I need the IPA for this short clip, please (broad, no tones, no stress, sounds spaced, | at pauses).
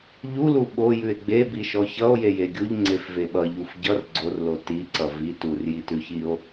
ʎ u l u ɓ o j ʉ e̯ ɡ͡b e b i ʃ ɔ ç ʌ o̯ j e j e ɡʲ u ʎ ŋ͡ǀ e f v e ɓ ʌ ʎ u f ɟ ʌ r ɡ͡ǀ o r l o t i ǀ ʌ v i t u r j i t ʉ ç i o̯